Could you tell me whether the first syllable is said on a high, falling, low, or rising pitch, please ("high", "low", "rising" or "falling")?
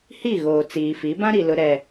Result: falling